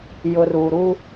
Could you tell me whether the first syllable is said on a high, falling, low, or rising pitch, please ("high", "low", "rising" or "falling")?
low